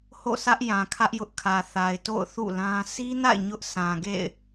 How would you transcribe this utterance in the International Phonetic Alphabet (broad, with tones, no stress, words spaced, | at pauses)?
ho̰˦˨sä˦ʔ jã˨kʰä˦ʔjʊ˦ʔkʰä˨ θa˨ɪ̯to̰˦˨ʊ̯θṵ˦˨ lã˦ si˦na̰˦˨ɪ̯ ɲʊ˦ʔ sã˨ ɡḛ˦˨ɪ̯